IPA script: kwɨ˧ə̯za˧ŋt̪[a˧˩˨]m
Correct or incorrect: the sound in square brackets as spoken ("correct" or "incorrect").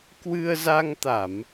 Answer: correct